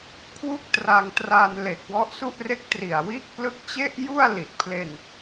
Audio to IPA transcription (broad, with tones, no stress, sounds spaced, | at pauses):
kʰ w u˥˩ k̚ t r a˧ ŋ t r aː˧ n l e˨˩ k̚ w ɔ˦˥ ʔ s u˥˩ ʔ r e˥˩ k̚ t r i˨˩ a̯ w iː˥˩ k̚ p l ɯ˦˥ k̚ t͡ɕ e˥˩ ʔ j u˥˩ a̯ l i˨˩ t̚ pʰ l e˧ n